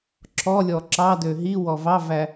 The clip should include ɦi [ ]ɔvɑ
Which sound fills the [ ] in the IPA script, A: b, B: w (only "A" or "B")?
B